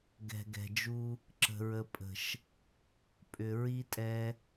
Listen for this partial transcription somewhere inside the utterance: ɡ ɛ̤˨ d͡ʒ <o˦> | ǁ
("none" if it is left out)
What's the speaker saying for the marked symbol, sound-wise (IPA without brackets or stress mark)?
u˦